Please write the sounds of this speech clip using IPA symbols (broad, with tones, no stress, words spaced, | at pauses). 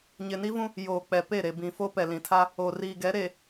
ɲɪ˨ni˦vũ˦ | joː˨k͡pɛ˨ pe˦˨ɾe˨ bĩ˨fo˦ pɛ˨lĩ˨tʰa˦ | o˨riː˨ɡɛ˨˦ɾe˨